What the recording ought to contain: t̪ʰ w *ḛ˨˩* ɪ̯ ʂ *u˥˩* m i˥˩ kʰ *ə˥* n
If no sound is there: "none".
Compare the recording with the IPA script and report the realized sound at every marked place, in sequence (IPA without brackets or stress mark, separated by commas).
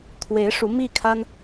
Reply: e˧˥, u˧˥, a˥